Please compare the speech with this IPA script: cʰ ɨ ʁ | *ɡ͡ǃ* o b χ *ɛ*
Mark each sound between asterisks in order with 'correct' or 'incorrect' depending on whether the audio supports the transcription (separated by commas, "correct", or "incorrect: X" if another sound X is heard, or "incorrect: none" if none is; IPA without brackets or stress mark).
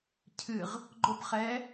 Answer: correct, correct